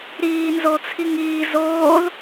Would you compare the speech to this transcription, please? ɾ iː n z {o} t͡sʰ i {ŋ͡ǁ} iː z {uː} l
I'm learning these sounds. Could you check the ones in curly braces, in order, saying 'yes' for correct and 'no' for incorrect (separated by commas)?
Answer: yes, no, no